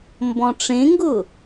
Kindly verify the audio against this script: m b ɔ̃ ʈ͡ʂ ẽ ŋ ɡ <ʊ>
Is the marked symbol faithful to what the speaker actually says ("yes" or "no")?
yes